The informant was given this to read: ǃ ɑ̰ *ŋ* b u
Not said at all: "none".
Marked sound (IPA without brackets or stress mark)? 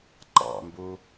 m